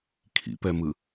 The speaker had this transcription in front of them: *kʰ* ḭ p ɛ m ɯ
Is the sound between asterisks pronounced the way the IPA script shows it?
yes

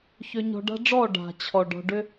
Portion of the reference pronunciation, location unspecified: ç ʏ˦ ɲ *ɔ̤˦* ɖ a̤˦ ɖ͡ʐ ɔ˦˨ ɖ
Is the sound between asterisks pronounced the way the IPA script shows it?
yes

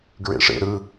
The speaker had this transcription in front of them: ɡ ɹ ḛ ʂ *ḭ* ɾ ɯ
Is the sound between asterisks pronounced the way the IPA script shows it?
no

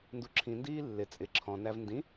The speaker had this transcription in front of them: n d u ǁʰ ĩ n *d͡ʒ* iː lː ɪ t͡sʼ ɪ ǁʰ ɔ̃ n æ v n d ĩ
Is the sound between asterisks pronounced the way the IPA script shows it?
no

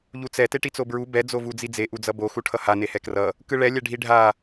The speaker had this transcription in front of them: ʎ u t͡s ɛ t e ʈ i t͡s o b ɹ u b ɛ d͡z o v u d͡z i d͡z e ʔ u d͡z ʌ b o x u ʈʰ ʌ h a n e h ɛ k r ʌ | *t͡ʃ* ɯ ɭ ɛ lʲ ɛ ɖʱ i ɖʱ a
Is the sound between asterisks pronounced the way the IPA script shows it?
no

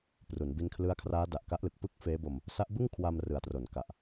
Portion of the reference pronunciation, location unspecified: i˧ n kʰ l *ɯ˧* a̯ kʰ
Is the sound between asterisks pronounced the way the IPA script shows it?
no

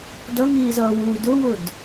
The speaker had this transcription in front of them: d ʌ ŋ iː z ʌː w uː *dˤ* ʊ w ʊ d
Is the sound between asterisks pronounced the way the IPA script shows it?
no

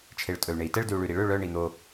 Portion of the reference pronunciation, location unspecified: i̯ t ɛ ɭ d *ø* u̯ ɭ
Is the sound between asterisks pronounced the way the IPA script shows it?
no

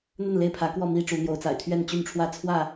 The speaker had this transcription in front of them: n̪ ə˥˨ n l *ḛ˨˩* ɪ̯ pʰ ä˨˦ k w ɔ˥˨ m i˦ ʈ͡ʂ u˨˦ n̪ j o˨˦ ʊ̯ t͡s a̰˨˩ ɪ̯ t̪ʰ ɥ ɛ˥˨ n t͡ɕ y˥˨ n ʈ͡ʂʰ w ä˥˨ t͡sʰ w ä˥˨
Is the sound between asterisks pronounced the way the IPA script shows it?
no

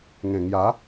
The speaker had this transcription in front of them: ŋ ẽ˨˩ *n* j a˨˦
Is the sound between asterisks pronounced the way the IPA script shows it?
no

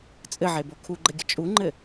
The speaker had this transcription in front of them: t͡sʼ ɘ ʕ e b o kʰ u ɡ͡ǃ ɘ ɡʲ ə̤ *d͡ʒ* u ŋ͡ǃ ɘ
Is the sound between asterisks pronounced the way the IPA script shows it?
no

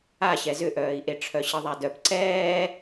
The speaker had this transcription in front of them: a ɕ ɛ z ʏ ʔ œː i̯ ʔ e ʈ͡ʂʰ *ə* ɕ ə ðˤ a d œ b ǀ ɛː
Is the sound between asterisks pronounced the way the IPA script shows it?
no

